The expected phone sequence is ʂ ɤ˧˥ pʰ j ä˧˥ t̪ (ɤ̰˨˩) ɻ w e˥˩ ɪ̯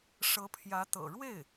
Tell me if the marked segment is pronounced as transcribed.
yes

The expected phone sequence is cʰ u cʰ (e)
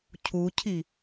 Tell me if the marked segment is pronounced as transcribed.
no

